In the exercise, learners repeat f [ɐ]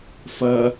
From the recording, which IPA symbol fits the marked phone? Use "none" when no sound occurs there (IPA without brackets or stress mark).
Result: ɐ